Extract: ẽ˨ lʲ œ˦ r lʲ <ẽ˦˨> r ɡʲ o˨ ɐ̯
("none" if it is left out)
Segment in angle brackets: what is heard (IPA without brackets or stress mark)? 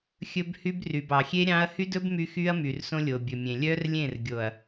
ẽ˦˨